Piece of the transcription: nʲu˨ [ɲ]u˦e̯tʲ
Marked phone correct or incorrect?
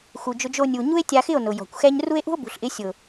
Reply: correct